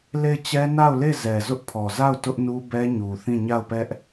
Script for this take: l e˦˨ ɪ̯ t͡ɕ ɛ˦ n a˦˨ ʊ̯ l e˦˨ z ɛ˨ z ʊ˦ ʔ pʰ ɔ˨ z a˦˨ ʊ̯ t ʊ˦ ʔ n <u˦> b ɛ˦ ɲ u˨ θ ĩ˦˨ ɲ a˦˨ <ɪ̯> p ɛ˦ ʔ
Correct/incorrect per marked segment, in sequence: correct, incorrect: ʊ̯

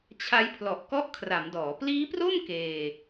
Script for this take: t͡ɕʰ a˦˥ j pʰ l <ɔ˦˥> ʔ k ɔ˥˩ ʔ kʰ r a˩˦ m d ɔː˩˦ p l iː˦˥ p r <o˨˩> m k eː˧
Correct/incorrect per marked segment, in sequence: incorrect: ɔ˨˩, incorrect: o˥˩

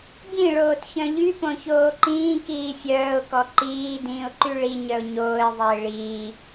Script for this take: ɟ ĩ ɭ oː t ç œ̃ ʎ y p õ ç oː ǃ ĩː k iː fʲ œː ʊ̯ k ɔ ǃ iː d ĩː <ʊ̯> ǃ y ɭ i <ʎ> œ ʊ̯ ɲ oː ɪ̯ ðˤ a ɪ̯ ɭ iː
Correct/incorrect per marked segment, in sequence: correct, incorrect: ɲ

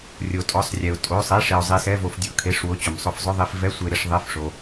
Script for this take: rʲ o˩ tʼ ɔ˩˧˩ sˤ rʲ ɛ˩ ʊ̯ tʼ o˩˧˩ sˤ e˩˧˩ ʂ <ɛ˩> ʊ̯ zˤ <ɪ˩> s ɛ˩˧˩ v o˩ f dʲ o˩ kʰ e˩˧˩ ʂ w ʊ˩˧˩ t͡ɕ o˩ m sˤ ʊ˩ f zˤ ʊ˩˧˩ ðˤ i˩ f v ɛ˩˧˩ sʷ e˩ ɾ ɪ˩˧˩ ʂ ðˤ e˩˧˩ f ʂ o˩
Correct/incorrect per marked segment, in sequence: incorrect: e˩, incorrect: i˩

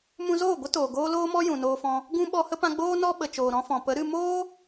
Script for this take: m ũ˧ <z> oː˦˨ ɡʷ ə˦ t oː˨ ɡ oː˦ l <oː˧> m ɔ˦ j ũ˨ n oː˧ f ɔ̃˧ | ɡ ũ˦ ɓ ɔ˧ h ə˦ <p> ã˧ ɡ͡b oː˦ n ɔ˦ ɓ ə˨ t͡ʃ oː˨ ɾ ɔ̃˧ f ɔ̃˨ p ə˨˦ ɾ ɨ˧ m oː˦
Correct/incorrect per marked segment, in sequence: correct, incorrect: oː˦, correct

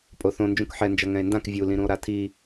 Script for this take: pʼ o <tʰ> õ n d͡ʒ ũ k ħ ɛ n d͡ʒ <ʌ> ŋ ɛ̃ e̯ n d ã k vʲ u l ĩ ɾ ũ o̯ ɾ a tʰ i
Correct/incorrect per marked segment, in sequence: incorrect: θ, correct

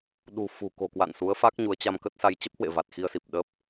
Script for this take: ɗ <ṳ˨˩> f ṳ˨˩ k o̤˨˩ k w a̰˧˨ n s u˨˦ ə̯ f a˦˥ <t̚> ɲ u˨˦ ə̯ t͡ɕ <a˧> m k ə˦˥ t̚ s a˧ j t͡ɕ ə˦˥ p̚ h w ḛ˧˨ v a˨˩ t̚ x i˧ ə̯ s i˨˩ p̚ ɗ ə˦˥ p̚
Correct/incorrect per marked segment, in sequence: correct, incorrect: k̚, correct

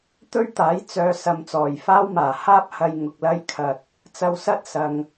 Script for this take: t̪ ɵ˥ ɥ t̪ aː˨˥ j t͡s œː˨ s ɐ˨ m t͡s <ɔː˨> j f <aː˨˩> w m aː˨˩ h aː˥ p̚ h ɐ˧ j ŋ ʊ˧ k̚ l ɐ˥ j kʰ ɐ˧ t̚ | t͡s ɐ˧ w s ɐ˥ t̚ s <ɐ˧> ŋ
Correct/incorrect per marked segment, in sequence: incorrect: ɔː˨˩, incorrect: aː˥, correct

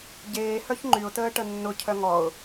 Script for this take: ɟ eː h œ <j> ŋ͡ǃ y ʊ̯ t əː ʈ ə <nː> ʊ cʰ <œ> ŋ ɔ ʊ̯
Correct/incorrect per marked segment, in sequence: incorrect: ç, correct, correct

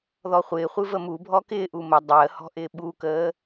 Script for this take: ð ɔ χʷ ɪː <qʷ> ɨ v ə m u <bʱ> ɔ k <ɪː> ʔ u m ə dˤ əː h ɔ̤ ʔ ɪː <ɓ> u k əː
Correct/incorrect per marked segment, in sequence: incorrect: χʷ, correct, correct, correct

